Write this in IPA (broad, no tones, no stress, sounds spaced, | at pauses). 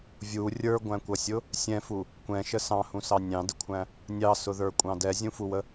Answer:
vʲ u rʲ ə˞ ɡʷ æ̃ kʷ ʌ sʲ ʊ | sʲ ɛ̃ f u | kʷ ɛ̃ ʃ ə s ɑ̃ h ũ s ɑ nʲ ɑ̃ d ə kʷʰ æ̃ | nʲ ɑ s ʊ ð ə˞ kʷʼ ɑ̃ d ɛ zʲ ũ f u w ə